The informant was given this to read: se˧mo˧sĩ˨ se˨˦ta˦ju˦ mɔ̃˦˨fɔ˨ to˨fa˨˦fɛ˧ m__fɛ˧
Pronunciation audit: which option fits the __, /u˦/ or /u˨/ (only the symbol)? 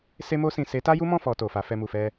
u˨